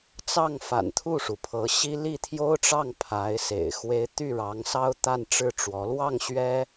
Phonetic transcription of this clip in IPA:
t͡sɑ˥˩ŋfa̰˨˩n t̪ʰu˥˩ʂu˩pʰɤ˧˥ ɕi˥ li˥˩t̪ʰjo˥ʊ̯ʈ͡ʂɑ˥˩ŋ pʰa˧˥ɪ̯sḛ˨˩ɪ̯ xwe˥ɪ̯ t̪y˥˩ɻɑ˧˥ŋsɑ˥ʊ̯ t̪a˥˧nʈ͡ʂɻ̩˥˩ʈ͡ʂwɔ˧˥ lwɑ˥˩ŋ ɕɥɛ˥

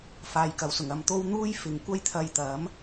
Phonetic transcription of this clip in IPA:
faː˨jkɐ˨wsʊ˨˩ŋ ɐ˧mt̪o˥w n̪uː˥j fɪ˨ŋkʷɐ˥j t̪ʰɐ˧jt̪ɐ˨˥m

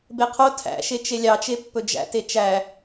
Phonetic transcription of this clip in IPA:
beqʰo tʰæ̰ʃe t͡ʃelʲɑt͡ʃepːɵ d͡ʒæ̰te t͡ʃæ

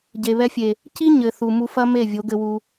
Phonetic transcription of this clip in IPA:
ɟe˨βɛ˧fʲe˨ | ci˦ ɲɘ˨θu˨ mu˧fɐ˦ me˦˨vʲo˨˦ɡɘ˧wu˧

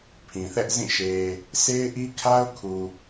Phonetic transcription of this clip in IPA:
pʰĩ˨θɛ˦ʔzĩ˦˨ ʃe˨ | sʰe˦ɪ̯ʔi˦kʰa˦ʊ̯kʰu˨

